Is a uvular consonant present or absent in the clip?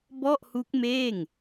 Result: absent